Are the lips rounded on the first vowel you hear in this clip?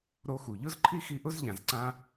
yes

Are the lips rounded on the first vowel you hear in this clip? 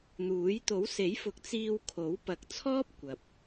yes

